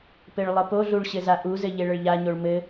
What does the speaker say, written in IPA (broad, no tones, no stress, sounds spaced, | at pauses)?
p ɘ ɭ lˠ ɘ p o ɮ u ɭ ɕ ɘ z a ʔ u z ɘ ʎ e ɭ ə ɭ ʎ a ɲ o ɭ m ɘ